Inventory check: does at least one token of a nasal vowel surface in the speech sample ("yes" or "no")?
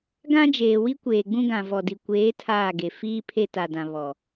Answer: yes